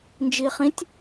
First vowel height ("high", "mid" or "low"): high